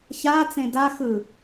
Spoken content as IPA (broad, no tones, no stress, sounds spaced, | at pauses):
ç a t͡s ẽ d a x ɯ